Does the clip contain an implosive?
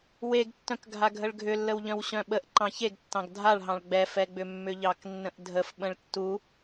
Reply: yes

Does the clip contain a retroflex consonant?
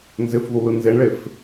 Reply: yes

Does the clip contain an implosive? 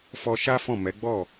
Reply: no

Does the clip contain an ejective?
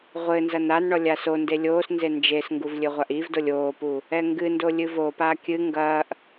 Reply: no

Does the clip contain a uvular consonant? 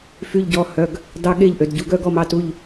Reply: no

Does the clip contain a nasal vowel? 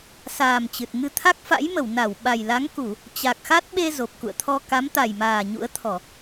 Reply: no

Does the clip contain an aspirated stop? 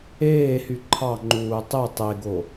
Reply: yes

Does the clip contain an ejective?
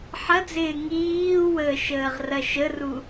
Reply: no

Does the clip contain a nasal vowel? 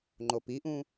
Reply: yes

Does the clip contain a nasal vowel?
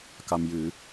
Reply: no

